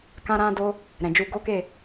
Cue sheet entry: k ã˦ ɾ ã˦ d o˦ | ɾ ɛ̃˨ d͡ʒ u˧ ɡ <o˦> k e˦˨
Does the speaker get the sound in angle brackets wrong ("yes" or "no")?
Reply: no